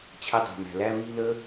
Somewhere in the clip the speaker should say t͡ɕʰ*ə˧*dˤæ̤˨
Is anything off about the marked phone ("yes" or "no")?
no